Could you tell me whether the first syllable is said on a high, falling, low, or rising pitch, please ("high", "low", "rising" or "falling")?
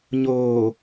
low